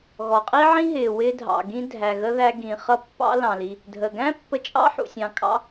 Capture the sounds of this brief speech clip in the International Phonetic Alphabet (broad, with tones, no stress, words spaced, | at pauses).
ɣɔ˩qʼi˥ʕĩ˥ɦɪː˩ wɪː˧dʱɑ̰˩ ɡĩ˧ dʱæ˩ɣə˧ ðæ˧ɡĩ˩ χʌ˧pːɑ̰˧lɑ̃˩li˩ | dʱəː˩ɡæ̃˥pːə˧ t͡ʃʼɑ̰˥ ħṵ˩sʲɑ̃˩kʼɑ̰˧